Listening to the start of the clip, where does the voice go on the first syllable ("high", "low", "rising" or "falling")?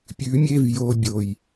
rising